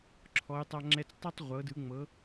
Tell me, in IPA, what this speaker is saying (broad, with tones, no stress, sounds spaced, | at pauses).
ǁʰ ɔ˩˧ j tˤ a˧ ŋ͡ǁ ɛ˧ t͡s tˤ ɯ˥˧ tˤ ʁʷ ɤ˩˧ d ɯ˩˧ ŋ͡m ɤ˩˧